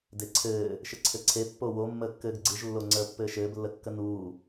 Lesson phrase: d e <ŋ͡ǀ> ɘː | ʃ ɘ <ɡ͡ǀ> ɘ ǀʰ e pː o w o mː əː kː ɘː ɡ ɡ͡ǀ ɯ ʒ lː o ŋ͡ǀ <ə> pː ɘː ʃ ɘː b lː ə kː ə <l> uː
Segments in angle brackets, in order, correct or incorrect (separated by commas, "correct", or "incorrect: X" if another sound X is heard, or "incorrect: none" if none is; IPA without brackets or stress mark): incorrect: ǀʰ, incorrect: ǀʰ, incorrect: əː, incorrect: n